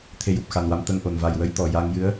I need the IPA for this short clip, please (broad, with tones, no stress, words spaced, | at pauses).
t̪ʰe˧ju˨˩p̚xa˨˩nwa˧m t̪ə˧ŋʔo˨˩n va˨˩jwə˧j t̪ɔ˨˩ ja˧ŋ jɨ˧˥ə̯